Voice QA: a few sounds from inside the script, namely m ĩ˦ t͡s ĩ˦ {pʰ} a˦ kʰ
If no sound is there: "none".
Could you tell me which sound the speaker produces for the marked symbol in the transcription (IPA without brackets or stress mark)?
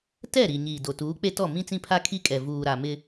pʰ